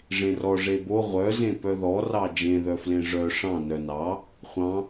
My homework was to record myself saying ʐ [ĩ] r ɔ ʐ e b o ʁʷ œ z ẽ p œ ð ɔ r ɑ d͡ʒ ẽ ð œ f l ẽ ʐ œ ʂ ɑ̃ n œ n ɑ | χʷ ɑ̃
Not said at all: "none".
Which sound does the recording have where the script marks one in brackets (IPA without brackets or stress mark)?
ẽ